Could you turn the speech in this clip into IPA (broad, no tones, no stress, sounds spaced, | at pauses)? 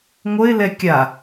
ŋʷ ə ɪ̯ l ɛ kʲ a